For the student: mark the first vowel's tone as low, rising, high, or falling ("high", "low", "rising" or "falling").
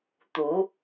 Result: rising